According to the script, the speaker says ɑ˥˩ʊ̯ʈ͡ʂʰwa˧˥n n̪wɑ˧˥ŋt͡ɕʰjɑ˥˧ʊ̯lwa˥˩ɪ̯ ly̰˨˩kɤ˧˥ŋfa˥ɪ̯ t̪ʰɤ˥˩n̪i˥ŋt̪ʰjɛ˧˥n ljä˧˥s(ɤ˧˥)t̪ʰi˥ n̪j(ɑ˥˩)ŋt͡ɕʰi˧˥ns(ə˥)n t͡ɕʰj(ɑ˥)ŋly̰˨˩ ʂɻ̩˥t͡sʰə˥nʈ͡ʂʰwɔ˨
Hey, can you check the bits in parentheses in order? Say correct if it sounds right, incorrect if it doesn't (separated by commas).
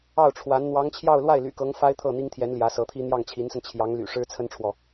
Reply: correct, correct, incorrect, incorrect